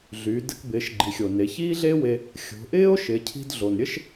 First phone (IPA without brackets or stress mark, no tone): ɮ